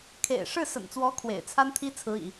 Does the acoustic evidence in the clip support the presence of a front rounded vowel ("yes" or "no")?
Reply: no